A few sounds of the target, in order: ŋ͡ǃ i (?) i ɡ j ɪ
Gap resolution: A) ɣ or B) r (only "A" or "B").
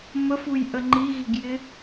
A